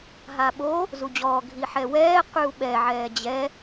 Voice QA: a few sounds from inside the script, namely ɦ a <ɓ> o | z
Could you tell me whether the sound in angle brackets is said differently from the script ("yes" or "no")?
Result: no